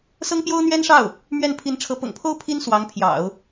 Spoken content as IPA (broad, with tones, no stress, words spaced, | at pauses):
sɤ˥ŋpjo˥ʊ̯n̪ɥɛ˥nʂɑ˥˩ʊ̯ | mɥɛ˥˩n pʰi˧˥nʈ͡ʂʰɤ˧˥ pʊ̰˨˩ŋpʰo˥ʊ̯ pʰi˥n swɑ˧˥ŋ pʰjɑ̰˨˩˦ʊ̯